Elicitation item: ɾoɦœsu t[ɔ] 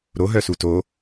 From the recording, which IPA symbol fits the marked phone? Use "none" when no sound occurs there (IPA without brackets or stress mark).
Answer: o